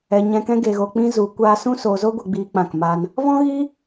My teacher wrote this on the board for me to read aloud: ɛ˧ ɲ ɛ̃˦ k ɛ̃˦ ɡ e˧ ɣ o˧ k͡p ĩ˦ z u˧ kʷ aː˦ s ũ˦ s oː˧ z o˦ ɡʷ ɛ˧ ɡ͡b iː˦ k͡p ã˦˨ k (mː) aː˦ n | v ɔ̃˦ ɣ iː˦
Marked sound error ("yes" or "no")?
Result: yes